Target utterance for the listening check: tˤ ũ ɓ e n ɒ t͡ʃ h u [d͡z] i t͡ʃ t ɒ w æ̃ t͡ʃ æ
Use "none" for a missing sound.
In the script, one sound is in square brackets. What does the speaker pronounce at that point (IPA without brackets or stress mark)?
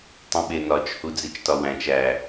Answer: d͡z